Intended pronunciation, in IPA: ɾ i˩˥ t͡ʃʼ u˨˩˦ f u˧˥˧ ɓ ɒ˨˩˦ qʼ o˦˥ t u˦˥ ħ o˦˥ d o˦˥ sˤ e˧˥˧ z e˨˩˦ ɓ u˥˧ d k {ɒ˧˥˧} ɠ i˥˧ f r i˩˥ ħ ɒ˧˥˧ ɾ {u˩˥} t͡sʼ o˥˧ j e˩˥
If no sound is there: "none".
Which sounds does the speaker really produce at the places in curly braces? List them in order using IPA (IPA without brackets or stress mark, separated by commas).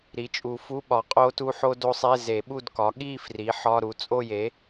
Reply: ɒ˩˥, u˩˥